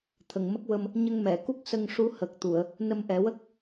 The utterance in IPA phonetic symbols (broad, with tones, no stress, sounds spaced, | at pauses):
t̪ʰ ə˨˩ ŋ m ə˦˥ k̚ w ə˧ m | ɲ ə˧ ŋ m ɛ˨˩˨ k u˦˥ k̚ s ə˧ ŋ ʂ u˧˥ h ə˨˩ k̚ t̪ u˨˩˨ ə̯ | n ə˧ m ʔ ɛ˨˩˦ w ə˦˥ k̚